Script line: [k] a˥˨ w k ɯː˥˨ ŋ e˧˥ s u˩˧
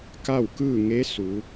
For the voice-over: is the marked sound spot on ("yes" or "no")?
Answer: yes